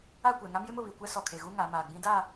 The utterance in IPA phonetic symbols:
a˦˨ kʷ ɛ˨ ŋ a˦ m j ɪ˦ m ʊ˨ β i˨ kʷ ɛ˦ s ɔ˨ kʰ e˨ ɣ u˦ ŋ a˨˦ m aː˨ ɡ͡b ĩ˦ d a˦˨

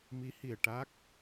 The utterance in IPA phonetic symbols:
m i˧˥ h i˨˩ ə̯ ʈ a˦˥ k̚

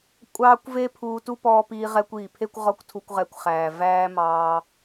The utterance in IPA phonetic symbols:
kʷʼ ɑː˦ kʷ v e˦ pʰ uː˧ t u˦ p ɔː˧ p iː˧ ʁ ɛ˧ kʷ iː˨ pʰ e˦ kʷ ʁ ɔ˦ kʷ tʰ u˧ kʷ ʁ ɛ˧ kʷ χ æː˨ v æː˦ m ɑː˧

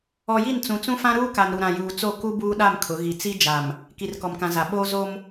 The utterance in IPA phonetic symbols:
ɔ˨ j i˦˨ n t͡s ũ˨ t͡s ũ˦ f ã˦ ɾ uː˦ k a˨ n ɾ u˨ ɾ ã˨ j uː˨ t͡s o˦˨ k u˦ b uː˦ ɗ a˦˨ m kʰ ʊ˨˦ ɣ i˨ t͡s i˦ d͡ʒ a˨ m | k i˨ r k ɔ˨ m k ã˨ z a˨ ɓ oː˦ z o˦ m

